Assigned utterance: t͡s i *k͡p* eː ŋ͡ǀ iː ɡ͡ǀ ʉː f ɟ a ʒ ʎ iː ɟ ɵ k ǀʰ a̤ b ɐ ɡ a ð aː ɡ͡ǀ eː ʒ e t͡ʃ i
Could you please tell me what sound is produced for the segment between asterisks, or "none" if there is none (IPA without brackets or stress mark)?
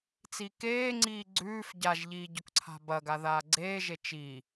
k